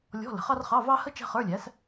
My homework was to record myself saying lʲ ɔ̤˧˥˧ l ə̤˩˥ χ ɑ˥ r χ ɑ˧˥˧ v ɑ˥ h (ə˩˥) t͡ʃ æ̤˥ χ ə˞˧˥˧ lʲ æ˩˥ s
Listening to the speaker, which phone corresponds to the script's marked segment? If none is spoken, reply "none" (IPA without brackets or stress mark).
ə˥